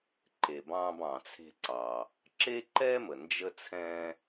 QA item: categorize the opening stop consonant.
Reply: click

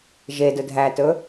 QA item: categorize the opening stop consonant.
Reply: plain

